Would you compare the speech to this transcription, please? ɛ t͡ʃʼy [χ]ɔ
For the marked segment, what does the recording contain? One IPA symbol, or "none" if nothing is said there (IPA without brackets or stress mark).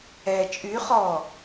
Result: χ